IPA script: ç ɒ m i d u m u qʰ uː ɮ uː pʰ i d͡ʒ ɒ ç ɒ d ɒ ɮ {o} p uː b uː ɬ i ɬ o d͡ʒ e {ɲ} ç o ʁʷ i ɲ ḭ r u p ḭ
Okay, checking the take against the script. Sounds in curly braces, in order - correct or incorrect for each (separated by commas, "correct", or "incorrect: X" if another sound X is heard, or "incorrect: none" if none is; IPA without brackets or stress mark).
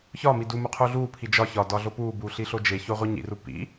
correct, incorrect: none